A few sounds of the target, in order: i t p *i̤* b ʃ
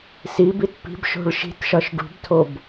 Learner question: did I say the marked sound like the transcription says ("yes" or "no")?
yes